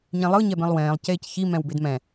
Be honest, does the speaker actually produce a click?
no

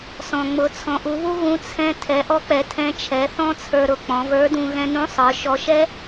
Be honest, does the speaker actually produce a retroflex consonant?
no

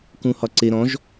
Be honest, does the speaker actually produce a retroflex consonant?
no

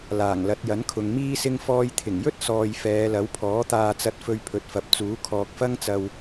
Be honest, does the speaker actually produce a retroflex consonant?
no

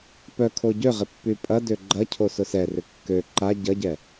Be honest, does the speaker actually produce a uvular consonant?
yes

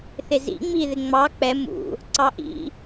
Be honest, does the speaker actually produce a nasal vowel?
no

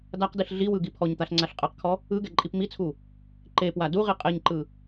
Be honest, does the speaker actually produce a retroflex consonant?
no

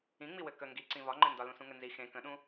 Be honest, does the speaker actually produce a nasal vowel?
yes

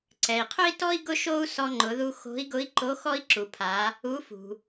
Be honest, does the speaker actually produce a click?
yes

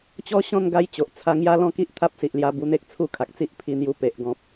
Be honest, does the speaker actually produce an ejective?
no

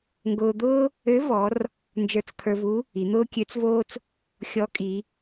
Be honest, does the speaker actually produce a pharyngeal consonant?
no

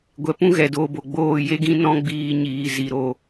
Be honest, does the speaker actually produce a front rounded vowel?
no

